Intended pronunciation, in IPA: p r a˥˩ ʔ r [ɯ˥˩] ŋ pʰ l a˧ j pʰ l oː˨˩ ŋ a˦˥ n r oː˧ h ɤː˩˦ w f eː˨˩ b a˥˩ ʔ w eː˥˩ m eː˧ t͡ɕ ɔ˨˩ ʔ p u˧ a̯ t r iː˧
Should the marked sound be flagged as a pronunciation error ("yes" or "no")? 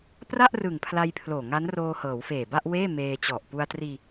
yes